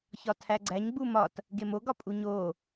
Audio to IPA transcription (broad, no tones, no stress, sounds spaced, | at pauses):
ç ɒ tʰ æ ɡ͡ǀ æ ɲ ɡ͡b u m ɒ t | ɡ e m o ɡ ɒ pʼ u ɲ o